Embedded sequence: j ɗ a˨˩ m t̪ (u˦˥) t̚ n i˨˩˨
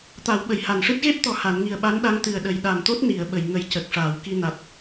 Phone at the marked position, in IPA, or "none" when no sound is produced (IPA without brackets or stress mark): o˦˥